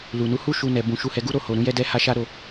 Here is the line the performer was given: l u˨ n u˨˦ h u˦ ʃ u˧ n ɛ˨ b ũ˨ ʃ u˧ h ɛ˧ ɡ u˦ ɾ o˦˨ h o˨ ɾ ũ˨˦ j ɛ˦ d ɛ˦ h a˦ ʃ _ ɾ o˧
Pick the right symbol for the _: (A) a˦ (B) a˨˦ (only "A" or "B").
A